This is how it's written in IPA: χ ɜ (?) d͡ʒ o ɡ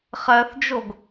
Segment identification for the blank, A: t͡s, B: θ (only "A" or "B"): B